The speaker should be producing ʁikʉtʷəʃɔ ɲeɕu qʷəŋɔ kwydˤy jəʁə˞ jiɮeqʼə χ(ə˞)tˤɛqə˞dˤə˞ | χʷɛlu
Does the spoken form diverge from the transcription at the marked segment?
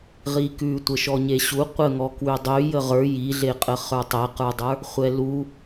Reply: no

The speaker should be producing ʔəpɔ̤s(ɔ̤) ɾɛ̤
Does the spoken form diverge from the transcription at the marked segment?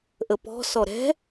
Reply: yes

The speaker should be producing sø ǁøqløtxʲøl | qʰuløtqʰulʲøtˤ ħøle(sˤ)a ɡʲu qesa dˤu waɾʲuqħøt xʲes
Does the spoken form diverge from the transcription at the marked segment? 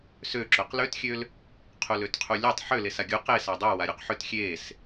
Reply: yes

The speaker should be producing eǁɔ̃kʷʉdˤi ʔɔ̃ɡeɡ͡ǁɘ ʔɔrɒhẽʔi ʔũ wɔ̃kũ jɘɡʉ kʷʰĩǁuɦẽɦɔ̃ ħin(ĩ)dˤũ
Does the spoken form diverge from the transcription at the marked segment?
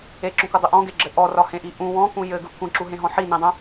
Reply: no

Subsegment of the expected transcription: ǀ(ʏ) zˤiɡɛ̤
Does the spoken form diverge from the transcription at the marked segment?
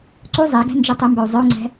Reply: yes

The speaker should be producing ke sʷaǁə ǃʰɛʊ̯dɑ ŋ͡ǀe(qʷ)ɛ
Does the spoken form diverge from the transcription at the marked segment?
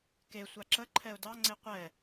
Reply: no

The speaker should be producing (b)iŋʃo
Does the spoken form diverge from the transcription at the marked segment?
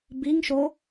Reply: no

